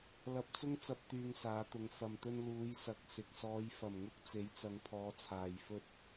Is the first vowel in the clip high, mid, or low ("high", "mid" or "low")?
low